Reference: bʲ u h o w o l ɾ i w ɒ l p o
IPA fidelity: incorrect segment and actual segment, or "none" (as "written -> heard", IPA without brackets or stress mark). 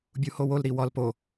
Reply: none